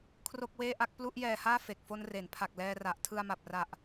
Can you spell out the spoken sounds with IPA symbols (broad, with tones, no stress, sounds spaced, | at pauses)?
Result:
kʰ r o˥˩ k̚ w eː˥˩ ʔ a˥˩ k̚ p l u˥˩ ʔ j ɛː˧ h aː˥˩ f e˨˩ k̚ f o˧ n r e˩˦ n pʰ a˨˩ k̚ l ɛː˧ r a˨˩ ʔ tʰ ɯ˧ a̯ m a˨˩ p̚ r a˨˩ ʔ